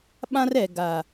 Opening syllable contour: high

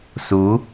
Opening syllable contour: rising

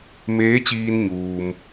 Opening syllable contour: rising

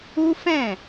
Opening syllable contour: high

